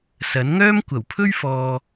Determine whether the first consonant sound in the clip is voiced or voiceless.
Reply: voiceless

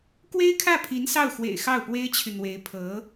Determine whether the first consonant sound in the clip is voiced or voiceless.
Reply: voiceless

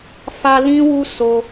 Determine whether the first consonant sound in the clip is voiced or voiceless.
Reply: voiceless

